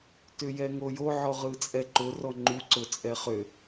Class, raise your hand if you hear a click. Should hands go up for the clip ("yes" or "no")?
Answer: yes